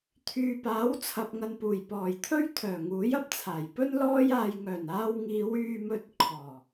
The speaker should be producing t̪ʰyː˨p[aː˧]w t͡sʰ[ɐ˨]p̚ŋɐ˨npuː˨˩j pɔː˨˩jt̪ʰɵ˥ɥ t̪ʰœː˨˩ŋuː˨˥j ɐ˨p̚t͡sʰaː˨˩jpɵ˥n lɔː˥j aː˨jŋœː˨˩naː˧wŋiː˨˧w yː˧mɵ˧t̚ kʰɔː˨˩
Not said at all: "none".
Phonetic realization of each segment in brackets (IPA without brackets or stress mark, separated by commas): aː˨˥, ɐ˨